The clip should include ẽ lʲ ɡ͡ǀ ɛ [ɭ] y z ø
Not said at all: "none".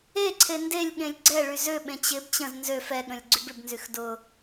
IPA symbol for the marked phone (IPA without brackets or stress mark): ɭ